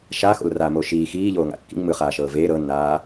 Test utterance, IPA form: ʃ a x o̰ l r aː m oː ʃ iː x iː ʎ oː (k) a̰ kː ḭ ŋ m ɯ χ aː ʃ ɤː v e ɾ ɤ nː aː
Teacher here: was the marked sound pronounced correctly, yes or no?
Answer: no